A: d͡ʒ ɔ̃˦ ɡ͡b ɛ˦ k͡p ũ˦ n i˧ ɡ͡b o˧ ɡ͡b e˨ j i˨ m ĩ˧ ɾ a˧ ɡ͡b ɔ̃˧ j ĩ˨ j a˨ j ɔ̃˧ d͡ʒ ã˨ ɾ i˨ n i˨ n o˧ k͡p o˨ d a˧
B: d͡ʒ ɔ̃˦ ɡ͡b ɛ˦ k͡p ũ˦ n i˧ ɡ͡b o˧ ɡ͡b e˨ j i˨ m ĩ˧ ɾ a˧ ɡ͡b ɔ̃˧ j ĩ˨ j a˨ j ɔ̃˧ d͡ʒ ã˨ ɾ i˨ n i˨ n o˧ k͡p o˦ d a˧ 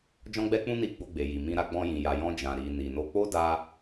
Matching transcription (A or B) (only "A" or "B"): B